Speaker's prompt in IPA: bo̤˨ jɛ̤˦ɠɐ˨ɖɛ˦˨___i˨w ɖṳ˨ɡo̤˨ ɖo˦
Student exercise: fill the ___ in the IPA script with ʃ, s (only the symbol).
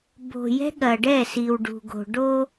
s